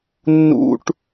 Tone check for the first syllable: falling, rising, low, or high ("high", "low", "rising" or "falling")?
low